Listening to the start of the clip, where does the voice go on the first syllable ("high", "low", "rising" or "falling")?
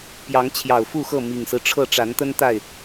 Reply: rising